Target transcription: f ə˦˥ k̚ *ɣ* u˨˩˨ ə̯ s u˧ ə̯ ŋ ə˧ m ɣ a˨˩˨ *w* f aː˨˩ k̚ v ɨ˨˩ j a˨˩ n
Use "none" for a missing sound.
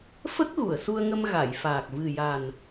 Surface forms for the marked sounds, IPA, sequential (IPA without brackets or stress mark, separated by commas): ɣ, j